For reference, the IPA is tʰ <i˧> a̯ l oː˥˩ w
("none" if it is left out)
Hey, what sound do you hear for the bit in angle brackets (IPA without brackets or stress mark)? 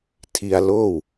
i˧